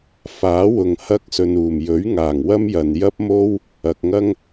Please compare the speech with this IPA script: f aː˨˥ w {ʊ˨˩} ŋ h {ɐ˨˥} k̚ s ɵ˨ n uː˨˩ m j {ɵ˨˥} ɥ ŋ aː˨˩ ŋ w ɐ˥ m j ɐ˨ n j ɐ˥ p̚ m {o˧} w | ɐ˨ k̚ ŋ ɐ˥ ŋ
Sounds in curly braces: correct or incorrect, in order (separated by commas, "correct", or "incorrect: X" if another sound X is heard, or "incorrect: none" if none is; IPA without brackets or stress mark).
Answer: incorrect: ʊ˨, incorrect: ɐ˧, correct, incorrect: o˥